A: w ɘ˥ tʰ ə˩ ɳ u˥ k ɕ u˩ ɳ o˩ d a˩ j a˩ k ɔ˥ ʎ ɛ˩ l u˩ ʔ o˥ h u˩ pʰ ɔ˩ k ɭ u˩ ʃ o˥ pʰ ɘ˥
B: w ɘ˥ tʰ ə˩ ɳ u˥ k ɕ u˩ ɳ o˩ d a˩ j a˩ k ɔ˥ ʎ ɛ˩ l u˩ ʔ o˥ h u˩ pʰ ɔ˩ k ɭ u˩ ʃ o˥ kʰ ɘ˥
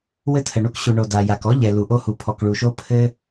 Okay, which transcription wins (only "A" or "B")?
A